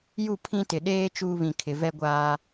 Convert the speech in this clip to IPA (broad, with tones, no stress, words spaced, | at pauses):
ju˦˨pʰĩ˦tɪ˨ ɗeː˦ t͡ʃuː˦βĩ˨kʰɪ˨ vɛ˦ɡʷaː˦